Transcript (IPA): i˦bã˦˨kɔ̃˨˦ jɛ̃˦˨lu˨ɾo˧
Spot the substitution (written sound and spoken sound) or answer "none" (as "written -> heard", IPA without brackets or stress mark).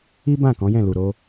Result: none